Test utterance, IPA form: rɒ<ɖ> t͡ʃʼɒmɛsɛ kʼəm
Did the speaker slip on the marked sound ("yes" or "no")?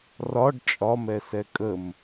no